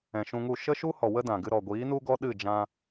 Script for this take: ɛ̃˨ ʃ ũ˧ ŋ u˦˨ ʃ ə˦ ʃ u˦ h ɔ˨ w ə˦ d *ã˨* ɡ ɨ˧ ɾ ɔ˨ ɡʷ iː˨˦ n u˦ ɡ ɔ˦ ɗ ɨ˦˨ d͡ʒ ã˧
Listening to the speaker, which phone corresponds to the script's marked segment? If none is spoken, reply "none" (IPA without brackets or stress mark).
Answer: ã˨